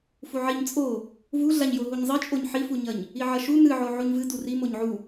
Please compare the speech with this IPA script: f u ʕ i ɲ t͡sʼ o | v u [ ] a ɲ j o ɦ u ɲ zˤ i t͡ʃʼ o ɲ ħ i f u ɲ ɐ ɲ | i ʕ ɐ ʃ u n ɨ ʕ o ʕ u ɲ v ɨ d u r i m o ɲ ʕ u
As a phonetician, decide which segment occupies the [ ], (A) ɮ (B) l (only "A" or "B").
A